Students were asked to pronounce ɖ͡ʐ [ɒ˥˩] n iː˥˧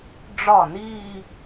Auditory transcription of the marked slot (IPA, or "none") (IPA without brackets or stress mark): ɒ˥˩